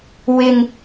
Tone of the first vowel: low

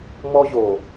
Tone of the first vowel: high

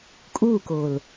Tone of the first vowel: falling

